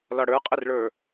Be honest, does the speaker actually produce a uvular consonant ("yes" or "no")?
yes